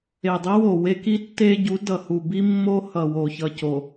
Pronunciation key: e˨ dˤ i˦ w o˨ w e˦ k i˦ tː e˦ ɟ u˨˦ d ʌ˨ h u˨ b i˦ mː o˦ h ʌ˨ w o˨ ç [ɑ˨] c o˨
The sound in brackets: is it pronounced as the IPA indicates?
no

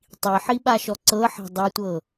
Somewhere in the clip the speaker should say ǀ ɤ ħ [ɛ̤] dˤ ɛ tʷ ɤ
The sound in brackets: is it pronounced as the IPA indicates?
yes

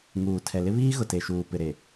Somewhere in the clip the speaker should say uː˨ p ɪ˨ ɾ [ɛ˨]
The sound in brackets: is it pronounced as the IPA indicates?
no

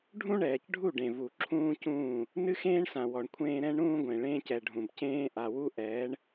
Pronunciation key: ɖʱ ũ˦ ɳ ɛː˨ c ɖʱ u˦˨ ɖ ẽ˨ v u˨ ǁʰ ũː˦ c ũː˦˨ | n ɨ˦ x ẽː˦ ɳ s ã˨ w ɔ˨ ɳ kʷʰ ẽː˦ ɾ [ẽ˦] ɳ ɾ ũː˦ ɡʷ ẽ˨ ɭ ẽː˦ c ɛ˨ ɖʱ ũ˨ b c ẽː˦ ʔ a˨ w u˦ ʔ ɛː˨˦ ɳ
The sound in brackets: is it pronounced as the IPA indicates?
no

